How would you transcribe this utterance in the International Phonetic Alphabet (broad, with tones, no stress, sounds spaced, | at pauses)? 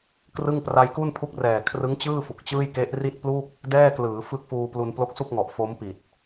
k r ɯ˥˩ ŋ p r a˧ j k u˥˩ n pʰ u˦˥ k̚ r ɛː˨˩ kʰ r ɯ˦˥ ŋ t͡ɕ ɯː˥˩ f u˨˩ k̚ t͡ɕ ɯː˥˩ j k e˦˥ ʔ r i˥˩ t̚ p l u˥˩ k̚ | d ɛː˥˩ k l ɯː˩˦ f ɯ˦˥ k̚ f uː˧ p l u˧ n p l o˦˥ k̚ s u˥˩ k̚ ŋ ɔ˨˩ ʔ f o˦˥ m p i˨˩ t̚